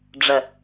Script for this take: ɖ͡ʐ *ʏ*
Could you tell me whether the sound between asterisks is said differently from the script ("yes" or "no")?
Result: yes